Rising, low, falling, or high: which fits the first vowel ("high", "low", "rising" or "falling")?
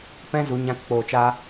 high